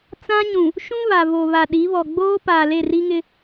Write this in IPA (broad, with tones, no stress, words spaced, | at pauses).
t͡sã˦ɲũ˨ | ʃũ˦ βa˨vo˨ βa˨ɗi˨˦βɔ˨ ɡ͡boː˦ paː˨le˦˨ri˦ŋɪ˦